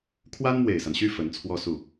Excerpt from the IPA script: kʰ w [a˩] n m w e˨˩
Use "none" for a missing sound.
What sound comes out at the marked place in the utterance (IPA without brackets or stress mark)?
a˥